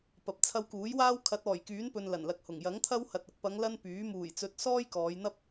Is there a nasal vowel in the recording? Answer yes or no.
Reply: no